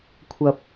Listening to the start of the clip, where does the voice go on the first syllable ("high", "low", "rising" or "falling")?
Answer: low